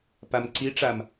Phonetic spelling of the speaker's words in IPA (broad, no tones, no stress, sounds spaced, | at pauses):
p a m ǀ i ʈ͡ʂ a m